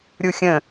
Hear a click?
no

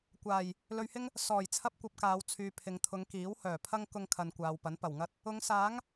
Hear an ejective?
no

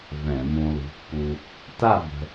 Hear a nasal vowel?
yes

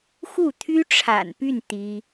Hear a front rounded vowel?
yes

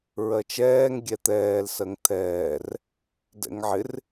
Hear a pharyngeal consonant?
yes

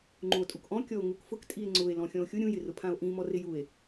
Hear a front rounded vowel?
no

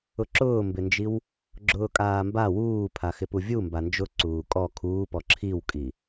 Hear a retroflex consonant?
no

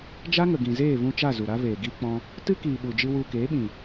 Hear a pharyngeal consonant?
no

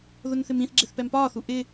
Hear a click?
yes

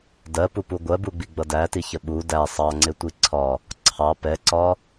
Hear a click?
yes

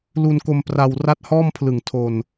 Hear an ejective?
no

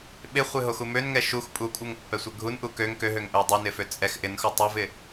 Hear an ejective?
yes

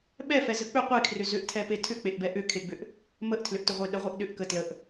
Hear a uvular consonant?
yes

